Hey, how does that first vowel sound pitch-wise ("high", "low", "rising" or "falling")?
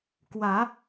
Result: rising